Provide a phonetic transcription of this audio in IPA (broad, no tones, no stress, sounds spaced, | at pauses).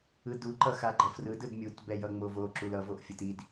ɯ d u ǃ ʌ x a ɡ͡ǃ ʌ f r ɯ d ɯ d mʲ u t b ɛ j ʌ ŋ͡m o v o ǁ u l ʌ v o ʔ fʲ ɯ t i d